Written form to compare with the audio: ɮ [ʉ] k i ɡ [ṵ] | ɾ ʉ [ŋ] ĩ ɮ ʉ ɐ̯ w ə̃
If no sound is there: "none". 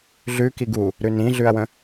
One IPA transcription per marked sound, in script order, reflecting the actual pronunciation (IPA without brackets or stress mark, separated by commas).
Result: ʉ, u, n